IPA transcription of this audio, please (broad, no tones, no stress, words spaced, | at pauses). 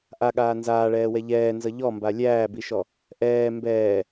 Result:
ʔaɠaː nzaːɭɛːwɛ ʎɛːnzʌ ʎɔmba lʲæːbiʃɔ | ʔɛː mbɛː